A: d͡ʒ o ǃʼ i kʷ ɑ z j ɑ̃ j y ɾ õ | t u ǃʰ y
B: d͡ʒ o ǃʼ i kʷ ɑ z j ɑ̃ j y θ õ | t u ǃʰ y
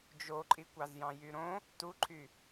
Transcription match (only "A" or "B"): A